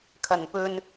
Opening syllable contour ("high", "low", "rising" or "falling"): low